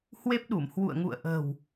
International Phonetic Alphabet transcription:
hwe˦˥p̚ɗu˧˩m hwṵ˧˨ə̯ŋṵ˧˨ə̯ʔə̤ː˨˩w

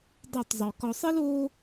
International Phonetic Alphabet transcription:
dˤa˦˨tˤzˤø˨ kɔ˨sˤi˦loː˦

